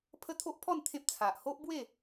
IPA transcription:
pʰə˦t̪ʰo˦ʔpʰɔ˥˧n t̪ʰẽ˦p̚t͡sʰa˨ʔ ho˦ʔbwe˥˧

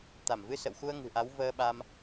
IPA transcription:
t̪a˧˩mvɨ˧sə̰˧˨wxu˧ə̯ ŋɨ̤˨˩ʔa˨˦w vəː˧ɓa˧m

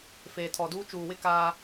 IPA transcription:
feː˨tʰɔ˨duː˦ t͡ʃuː˨wɪ˦ kaː˦

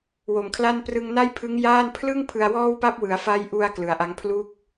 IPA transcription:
wo˨˩mkʰla˥˩n prɯ˧ŋna˥˩jpʰɯ˦˥ŋ jaː˥˩n pʰlɯ˥˩ŋpʰɯ˧a̯ wɔː˥˩wpa˥˩p̚ wɯ˩˦a̯fa˦˥jʔu˧a̯ klɯ˩˦a̯ʔa˦˥ŋ pʰlu˥˩k̚

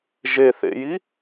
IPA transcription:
ʒeθḛji

